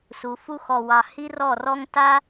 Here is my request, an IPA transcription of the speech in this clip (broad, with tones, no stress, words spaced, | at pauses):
su˨˦fu˦xɔ˧wɑ˧ hi˦rɔ˦˨rɔ˦ŋ ta˦